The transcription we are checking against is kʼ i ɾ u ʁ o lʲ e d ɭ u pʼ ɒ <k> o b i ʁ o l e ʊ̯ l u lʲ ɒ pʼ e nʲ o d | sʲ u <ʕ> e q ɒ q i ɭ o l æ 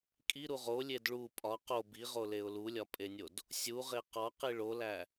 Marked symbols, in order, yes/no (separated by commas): no, no